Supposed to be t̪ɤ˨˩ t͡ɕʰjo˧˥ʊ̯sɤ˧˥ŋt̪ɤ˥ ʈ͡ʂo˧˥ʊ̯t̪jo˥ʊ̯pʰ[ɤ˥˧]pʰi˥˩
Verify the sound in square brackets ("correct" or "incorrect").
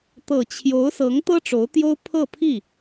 correct